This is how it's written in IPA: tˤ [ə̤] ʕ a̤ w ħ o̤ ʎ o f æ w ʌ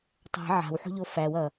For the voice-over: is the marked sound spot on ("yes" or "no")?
no